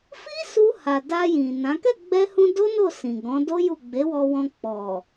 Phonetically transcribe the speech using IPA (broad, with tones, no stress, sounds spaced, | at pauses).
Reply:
f i˦ s u˧ h a˨ d a˧ j ĩ˨ n ã˨˦ k ɛ˦˨ ɡ͡b ɛ˧ h ũ˧ d o˦ n o˦˨ s ĩ˨ ɡ ɔ̃˨˦ d o˦ j u˦˨ ɡ͡b e˨˦ w ɔ˧ w ɔ̃˧ k͡p ɔ˨